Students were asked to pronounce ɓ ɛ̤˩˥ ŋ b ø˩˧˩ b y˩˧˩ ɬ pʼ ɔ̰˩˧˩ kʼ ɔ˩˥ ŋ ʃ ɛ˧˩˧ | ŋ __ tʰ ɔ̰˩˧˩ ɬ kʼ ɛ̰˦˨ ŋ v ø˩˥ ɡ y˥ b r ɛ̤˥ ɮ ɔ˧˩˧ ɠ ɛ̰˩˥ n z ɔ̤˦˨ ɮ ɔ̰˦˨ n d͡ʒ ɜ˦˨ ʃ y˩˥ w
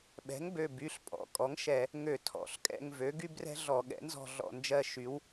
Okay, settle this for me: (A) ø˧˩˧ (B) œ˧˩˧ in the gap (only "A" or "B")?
A